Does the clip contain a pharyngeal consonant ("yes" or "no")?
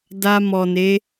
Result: no